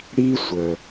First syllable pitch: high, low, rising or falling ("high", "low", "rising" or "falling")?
high